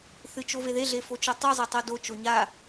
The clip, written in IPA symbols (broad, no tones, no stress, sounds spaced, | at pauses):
θ ɨ t͡ʃ o v e ð e ɮ e f o t͡ʃ o tˤ u zˤ e tˤ o d o t͡ʃ o ɲ a